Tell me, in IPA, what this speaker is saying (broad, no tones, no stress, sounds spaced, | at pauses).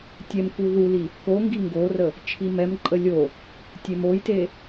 tʲ ɛ m k u ð u l i | k o ŋ ɡ i ŋ ɡ o r ə | t͡ʃʰ i m ɛ m ǃʼ ə lʲ o | tʲ e m o j t e